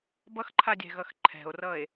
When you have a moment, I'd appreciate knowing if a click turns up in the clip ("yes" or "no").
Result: yes